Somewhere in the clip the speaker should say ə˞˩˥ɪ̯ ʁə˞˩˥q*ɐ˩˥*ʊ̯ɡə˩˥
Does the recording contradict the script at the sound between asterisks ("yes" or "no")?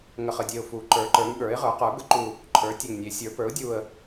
yes